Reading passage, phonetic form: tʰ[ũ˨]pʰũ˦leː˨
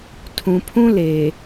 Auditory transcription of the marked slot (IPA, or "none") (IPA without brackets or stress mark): ũ˨